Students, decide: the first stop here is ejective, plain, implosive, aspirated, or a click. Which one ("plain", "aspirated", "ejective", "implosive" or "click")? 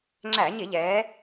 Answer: click